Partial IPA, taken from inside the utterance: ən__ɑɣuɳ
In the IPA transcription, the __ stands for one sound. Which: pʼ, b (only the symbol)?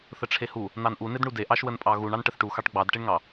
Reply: pʼ